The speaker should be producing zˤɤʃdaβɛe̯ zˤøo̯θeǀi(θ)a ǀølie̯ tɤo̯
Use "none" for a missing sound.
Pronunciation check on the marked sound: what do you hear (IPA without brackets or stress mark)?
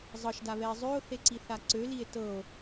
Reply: θ